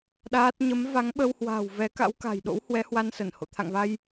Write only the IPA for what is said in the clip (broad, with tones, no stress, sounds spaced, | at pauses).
ɗ aː˦˥ t̚ ɲ ə˨˦ m v a˨˦ ŋ ɓ ə˧ w h w a̤ː˨˩ w v ɛ˨˦ k a̰˧˥ w k a̤˨˩ j ɗ o̰˧˥ w h w ɛ˨˦ h w a˧ n s ə˧˩ n h o̰˧˨ t̪ʰ a̰˧˨ ŋ v a˧ j